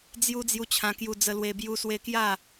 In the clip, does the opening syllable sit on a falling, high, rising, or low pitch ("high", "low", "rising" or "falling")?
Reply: high